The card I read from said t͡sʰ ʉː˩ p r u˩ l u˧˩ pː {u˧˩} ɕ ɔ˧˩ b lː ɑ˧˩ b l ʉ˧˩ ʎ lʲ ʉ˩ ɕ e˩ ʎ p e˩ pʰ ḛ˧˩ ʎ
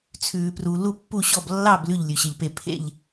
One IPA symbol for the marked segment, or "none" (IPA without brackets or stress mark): u˧˩